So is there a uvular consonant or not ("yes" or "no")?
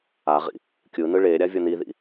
yes